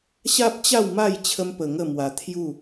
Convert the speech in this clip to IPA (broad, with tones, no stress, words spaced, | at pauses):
ɕa˦p̚t͡ɕa˥˧wma˥˧j t͡ɕʰə˦mpə˧ŋə˥˧mwa˧ t̪ʰju˥˧